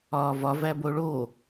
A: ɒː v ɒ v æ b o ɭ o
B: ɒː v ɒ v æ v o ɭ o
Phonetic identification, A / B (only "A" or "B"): A